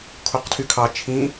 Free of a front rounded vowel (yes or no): no